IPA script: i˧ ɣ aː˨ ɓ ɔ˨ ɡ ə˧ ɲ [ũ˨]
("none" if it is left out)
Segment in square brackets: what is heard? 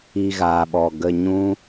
ũ˦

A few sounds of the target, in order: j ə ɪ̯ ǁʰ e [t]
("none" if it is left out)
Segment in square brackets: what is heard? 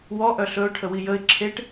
ʈ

